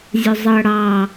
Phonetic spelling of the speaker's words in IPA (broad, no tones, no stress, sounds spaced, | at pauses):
zʲ ʊ zˤ ɤ ɽ ɑ